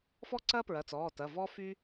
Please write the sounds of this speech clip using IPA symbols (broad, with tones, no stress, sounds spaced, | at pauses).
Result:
f ɔ˥ ǀ ɐː˥ p ɹ ɐ˩˧˩ t͡s ɔː˩˧˩ t ɐ˩˧˩ v ɔ˥ f y˥